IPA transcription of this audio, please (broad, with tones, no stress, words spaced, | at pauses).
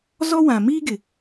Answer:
zɔ˦ wã˨miː˦ ɡɪ˨